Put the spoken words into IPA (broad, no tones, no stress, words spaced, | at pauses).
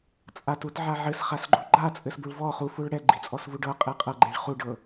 t͡sʼatutʕa ʕɘsχasɡ͡ǃu ɡ͡ǃat͡sʼɘsbuɭ vɔ χufuɭ ɽɛɡ͡ǃit͡sʼɔsvu ɖɤqʼe qʼɤɡ͡ǃeɭ χuɖɤ